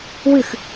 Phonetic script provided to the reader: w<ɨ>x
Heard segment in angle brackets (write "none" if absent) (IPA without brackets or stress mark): ɨ